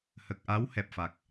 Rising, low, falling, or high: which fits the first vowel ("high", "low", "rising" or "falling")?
low